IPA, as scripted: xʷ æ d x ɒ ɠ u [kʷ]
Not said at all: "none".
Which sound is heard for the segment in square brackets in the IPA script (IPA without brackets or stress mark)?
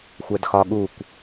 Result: kʷ